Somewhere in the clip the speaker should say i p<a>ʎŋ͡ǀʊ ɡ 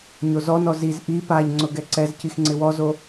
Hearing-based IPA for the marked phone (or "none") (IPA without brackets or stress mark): a